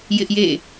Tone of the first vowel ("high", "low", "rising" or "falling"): high